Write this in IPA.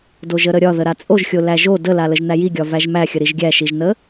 d o ʒ ə ɾ ə ɾʲ ɒ ð ə ɾ a t͡sʼ o ʒ xʲ o l æ ʒ o d ə l a l ə ʒ n̪ æ j i ɡʲ ɒ v æ ʒ m æ xʲ ə ɾ i ʒ ɡʲ æ ʃ i ʒ n ə

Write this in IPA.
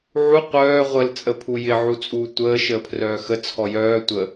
ʕ u qʷ œː ʁʷ ə l t͡sʼ ə pʰ u j ɪ ʕ u t͡sʼ uː tʷ əː ʃ əː pʰ r œː x ə t͡sʰ ɔ j œː tʷ ə

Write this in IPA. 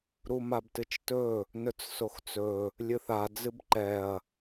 ɾ u m a b t ɨ t͡ʃ t ɵ | n ɵ t͡s s o x t͡s ɵ | lʲ ɨ θ a d͡z ɨ b ǃ ɛ ɐ̯

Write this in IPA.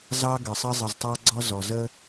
z ɑ˦ ɡ ə˩ sˤ ə˦ zˤ ə˨ z tˤ ɑ˦ ɡ͡ǀ ɔ˦ z ɔ˩ z ə˥

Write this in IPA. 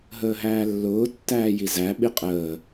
ɦ əː ɦ æː lː ʊː tː æː j i z æ ɓ i qʼ əː

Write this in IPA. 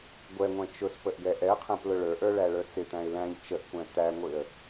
ɡʷ ɛ ŋʷ ɛ̃ t͡ʃ ʊ s p ə ʔ ɡ ɛ ʔ ɛ ə̯ qʰ æ̃ p l ʊ ɭ ə˞ ʔ ə˞ ɭ æ ɭ ə˞ t͡s ɪ t̪ æ̃ ɪ̯ l æ̃ ʎ t͡ʃ ə ʔ kʷ æ̃ t̪ æ ŋʷ ɪ ə̯

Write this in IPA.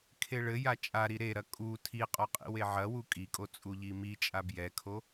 kʰ e ɭ ɘ j a t͡ʃʼ a ɾ i ɾ e ɾ ɐ kʼ u tʰ i qʼ ɔ qʼ ḭ w e ʕ ɐ w u kʼ i kʼ o t͡sʼ u ʎ i m i t͡ʃʼ a b j ɛ kʰ o

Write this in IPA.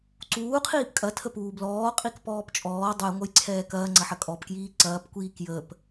ǀ uː qʰ iː p kʼ ɐ tʰ ə p uː b l ɔː qʼ i k p ɔː p t͡ʃʼ ɔː dˤ u j ŋʷ ɐ j ǀʰ ɛː k ɐː ŋ͡ǀ ɐ ħ ɐ kʼ ɔ p k j iː ǀ ɐː p kʷ iː k j əː p

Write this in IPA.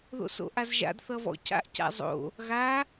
ð o̰ s o̰ ʔ a z ʒ a̰ d θ ʌ v ɔ̰ c a̰ ʔ c a̰ zˤ o̰ | ɣ a

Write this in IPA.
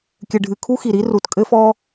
kʲ ɘ˩ ɖʱ ɨ˩ kʰ u˥ x i˩ ɾ i˥ r u˩ t kʼ ɘ˥ f ɔ˥

